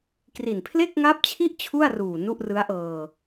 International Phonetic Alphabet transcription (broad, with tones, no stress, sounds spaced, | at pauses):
k r i˨˩ n pʰ l e˥˩ k̚ ŋ a˦˥ p̚ t͡ɕʰ i˥˩ ʔ t͡ɕʰ u˥˩ a̯ r uː˨˩ n u˥˩ ʔ r ɯ˦˥ a̯ ʔ ɤː˧